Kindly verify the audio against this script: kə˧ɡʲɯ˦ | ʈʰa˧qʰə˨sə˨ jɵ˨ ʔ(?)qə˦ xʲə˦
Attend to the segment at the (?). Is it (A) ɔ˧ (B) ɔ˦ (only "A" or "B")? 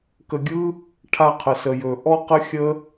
B